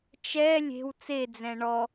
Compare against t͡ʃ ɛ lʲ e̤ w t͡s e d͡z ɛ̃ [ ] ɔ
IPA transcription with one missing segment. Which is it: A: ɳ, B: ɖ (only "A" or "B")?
A